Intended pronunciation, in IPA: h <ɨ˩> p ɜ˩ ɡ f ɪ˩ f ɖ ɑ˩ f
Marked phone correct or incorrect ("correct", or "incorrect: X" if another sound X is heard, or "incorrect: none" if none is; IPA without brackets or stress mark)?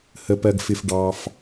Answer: incorrect: ə˩